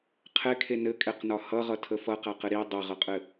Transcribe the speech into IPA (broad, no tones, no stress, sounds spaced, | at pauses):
qʰ ɛ kʰ e n ɘ kʼ ɛ q n ɒ h ʌ ʁ ʌ tʰ ə f ʌ q a q ɘ ɾ i dˤ ɘ ʁ ʌ qʼ ɘ